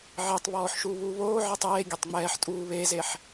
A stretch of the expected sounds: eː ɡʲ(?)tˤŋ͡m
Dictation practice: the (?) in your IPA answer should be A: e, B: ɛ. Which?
A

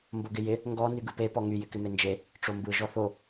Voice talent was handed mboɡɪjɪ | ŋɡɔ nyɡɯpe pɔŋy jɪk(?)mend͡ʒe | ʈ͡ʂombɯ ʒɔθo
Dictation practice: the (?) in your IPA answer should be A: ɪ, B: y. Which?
A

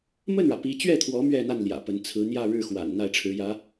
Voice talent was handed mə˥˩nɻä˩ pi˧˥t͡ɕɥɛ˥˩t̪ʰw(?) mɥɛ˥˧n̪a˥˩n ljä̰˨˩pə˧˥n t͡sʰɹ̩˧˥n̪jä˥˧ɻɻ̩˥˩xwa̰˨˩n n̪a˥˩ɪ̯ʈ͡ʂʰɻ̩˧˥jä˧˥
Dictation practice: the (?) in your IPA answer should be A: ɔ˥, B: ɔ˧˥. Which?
B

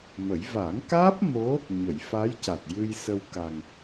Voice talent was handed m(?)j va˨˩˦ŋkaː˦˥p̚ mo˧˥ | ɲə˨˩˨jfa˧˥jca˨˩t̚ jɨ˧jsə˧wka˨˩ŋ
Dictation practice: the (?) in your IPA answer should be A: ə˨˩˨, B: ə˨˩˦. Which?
B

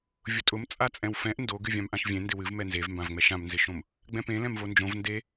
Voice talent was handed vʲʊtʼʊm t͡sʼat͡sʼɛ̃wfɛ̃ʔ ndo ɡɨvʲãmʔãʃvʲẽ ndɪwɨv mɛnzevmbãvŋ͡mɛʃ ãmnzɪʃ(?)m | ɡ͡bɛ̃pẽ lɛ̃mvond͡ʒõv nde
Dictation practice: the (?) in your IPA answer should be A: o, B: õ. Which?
B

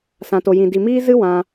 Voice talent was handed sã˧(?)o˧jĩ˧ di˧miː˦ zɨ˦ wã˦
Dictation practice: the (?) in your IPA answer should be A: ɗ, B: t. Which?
B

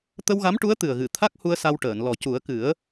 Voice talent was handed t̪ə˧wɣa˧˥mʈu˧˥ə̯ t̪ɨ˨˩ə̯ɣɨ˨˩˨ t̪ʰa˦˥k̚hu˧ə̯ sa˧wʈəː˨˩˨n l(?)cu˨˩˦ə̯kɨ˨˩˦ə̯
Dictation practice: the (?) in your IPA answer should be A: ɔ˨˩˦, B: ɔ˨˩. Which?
B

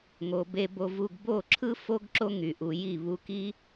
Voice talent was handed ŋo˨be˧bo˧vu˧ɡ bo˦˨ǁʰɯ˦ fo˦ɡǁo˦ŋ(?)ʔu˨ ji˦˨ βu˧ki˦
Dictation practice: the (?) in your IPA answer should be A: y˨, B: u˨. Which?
A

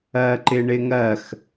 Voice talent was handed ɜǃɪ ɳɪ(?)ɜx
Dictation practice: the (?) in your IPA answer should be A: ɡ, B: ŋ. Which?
B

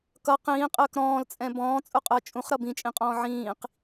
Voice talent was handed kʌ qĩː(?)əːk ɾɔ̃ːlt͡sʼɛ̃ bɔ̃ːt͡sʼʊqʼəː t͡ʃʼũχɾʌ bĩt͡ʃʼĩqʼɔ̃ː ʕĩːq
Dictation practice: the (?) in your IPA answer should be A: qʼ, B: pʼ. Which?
A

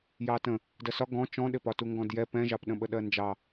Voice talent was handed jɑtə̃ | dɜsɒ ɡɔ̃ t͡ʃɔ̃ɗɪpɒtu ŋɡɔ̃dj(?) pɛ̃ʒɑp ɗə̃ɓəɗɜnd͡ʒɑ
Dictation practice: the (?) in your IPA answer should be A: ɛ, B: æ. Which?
A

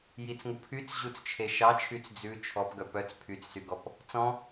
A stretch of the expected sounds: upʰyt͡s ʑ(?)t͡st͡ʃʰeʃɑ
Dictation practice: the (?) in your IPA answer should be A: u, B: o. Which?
A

